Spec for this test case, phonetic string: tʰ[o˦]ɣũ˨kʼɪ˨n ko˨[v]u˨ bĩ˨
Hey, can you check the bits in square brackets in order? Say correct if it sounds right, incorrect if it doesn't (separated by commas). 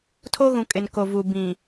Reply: correct, correct